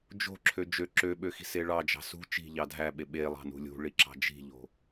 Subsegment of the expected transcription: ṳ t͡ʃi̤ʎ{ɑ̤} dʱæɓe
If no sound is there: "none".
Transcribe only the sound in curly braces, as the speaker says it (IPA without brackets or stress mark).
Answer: ɑ